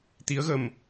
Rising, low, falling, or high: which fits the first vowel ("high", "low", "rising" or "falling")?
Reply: rising